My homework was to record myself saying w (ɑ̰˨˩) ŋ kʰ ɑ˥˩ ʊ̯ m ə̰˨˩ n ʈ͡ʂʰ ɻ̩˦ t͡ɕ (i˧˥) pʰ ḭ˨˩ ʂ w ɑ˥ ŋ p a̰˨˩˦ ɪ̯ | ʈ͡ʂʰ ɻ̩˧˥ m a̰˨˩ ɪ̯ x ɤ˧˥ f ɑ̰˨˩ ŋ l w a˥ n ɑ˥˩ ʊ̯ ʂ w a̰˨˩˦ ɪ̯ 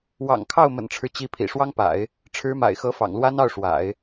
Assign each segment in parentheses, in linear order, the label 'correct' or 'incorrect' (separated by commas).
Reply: correct, correct